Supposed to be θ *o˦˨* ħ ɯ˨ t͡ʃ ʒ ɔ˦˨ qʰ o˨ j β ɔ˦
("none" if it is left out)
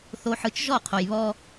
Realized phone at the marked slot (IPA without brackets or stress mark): o˨